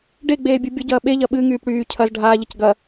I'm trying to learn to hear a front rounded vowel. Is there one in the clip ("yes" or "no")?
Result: yes